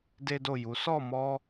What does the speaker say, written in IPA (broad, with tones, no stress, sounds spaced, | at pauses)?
d e˦ d o˦˨ j u˨˦ s ɔ˦˨ m ɔ˧